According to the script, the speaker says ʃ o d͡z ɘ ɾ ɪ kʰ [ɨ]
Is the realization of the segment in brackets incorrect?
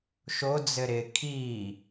yes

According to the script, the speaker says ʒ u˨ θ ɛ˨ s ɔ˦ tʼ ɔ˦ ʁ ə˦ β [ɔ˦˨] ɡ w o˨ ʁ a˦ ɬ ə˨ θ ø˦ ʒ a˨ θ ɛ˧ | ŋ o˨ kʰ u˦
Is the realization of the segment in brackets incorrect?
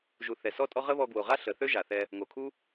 yes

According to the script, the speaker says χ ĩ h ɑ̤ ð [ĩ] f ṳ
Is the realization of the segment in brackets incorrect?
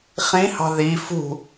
yes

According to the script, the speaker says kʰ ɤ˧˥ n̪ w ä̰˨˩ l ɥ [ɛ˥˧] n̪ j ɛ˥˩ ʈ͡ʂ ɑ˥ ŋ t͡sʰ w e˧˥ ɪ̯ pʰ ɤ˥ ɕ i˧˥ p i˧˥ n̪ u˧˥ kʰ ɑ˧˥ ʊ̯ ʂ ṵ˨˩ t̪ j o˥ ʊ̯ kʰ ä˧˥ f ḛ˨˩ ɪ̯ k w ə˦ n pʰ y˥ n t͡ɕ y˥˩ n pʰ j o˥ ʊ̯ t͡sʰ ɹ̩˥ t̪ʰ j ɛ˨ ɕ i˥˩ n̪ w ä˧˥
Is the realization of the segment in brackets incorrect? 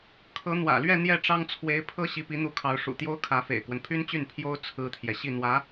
no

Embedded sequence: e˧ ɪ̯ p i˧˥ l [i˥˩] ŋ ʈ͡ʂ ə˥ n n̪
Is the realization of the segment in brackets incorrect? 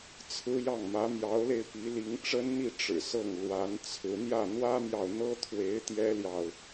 yes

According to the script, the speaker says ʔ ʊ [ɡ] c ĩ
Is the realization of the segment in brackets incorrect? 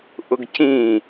no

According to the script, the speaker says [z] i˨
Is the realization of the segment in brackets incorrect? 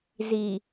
no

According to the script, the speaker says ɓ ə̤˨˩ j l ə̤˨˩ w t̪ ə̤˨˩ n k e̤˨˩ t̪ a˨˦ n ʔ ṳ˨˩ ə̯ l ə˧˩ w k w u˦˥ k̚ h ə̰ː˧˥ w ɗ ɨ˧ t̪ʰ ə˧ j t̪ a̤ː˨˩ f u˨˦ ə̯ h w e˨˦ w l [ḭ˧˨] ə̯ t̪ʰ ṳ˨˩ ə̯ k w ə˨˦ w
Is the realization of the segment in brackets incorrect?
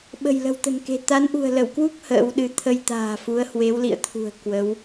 no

